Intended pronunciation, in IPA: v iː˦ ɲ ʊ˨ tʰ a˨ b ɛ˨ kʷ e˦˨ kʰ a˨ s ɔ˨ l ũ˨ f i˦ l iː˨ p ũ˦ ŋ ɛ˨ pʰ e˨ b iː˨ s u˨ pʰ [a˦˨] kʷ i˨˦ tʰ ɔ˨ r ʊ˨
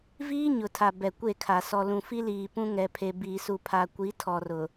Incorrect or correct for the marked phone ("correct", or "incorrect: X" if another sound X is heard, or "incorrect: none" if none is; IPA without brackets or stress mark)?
incorrect: a˨